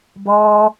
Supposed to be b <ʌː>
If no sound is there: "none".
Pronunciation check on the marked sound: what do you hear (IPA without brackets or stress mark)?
ʌː